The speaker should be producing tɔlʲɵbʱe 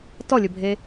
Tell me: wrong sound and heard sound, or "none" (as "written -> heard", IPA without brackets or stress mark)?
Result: none